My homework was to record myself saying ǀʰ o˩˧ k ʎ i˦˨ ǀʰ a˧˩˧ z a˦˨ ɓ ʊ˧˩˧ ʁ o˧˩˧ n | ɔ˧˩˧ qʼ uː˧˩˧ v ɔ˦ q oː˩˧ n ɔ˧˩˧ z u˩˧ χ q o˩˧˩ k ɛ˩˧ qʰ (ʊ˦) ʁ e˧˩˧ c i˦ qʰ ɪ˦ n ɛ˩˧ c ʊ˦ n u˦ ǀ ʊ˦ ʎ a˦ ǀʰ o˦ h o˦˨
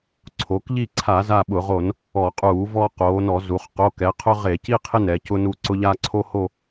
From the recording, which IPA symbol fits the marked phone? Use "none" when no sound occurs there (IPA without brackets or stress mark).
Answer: ʊ˦